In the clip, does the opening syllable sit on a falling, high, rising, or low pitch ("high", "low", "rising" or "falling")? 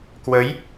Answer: rising